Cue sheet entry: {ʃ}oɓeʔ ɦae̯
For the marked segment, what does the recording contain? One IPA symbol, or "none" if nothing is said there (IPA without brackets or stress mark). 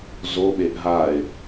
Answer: z